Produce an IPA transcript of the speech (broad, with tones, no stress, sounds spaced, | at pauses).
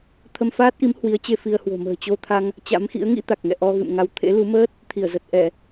t̪ʰ ə˧ m f aː˦˥ t̚ ʔ i˨˦ m h w i˨˦ ə̯ t͡ɕ e˧ f i˧ ə̯ h w o̤˨˩ m ə̤ː˨˩ t͡ɕ o˧ t̪ʰ a˧ ŋ | t͡ɕ a̰˧˥ m x ḭ˧˥ ə̯ ŋ ḭ˧˥ t̪ a˨˩ k̚ ŋ ɛ̰˧˨ ʔ ɔ˧ ɣ ɨ̰˧˨ m ŋ a˧ w t̪ʰ ḛ˧˥ l u˨˦ m əː˦˥ t̚ | t̪ʰ i˧˩ ə̯ z ə˨˩ t̚ ʔ ɛ˧˩˨